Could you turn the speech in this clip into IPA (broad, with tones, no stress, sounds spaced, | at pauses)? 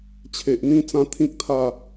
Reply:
t͡ɕʰ e˨ ʔ n̪ ĩ˧ t͡s ã˦ t̪ʰ ĩ˦ k̚ t̪ʰ a˥˧